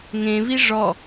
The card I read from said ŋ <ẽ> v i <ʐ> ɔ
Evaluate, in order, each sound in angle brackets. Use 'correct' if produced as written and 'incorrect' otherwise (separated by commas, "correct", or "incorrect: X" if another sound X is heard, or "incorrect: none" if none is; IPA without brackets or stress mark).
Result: correct, correct